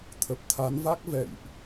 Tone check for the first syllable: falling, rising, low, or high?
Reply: low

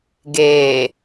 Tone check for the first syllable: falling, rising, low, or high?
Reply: low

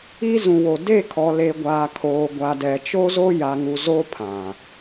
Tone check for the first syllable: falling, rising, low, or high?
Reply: high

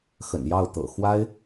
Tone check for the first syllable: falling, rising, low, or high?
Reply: low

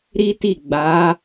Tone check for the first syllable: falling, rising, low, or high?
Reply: high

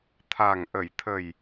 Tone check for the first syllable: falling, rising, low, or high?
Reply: low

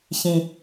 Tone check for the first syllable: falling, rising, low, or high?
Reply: low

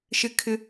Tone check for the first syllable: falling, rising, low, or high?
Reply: high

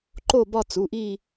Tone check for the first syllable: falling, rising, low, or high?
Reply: falling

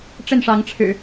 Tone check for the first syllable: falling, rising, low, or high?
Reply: falling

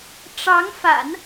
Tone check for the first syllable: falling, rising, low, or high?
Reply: rising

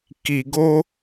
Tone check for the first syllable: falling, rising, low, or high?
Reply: low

